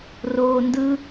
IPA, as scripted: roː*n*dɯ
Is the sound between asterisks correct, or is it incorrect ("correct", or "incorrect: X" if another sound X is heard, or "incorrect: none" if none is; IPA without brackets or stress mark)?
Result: correct